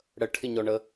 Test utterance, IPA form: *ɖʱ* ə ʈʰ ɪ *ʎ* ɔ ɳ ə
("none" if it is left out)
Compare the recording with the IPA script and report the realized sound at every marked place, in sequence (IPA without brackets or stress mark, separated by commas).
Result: ɽ, ɲ